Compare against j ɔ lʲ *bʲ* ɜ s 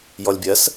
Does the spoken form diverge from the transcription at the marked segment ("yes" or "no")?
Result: no